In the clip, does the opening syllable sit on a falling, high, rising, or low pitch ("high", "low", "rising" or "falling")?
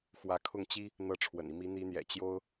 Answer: rising